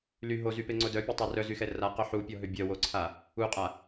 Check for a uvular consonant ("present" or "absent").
present